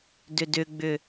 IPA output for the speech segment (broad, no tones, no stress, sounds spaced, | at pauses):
d ʏ d ʏ ɡ͡b ʏ